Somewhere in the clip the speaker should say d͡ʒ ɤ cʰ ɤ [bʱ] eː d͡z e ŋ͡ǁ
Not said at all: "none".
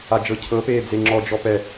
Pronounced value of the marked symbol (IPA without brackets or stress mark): p